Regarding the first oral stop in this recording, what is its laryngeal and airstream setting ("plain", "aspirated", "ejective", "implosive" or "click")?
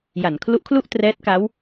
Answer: aspirated